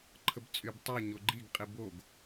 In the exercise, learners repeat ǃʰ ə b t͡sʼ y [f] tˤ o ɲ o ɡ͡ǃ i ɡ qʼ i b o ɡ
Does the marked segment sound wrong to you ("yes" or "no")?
yes